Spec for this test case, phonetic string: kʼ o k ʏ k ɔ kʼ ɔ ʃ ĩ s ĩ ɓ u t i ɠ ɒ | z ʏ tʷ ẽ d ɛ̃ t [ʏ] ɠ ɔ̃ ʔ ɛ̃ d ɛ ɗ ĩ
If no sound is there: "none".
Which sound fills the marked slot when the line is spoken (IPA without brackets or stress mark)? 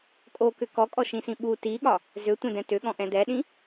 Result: ʏ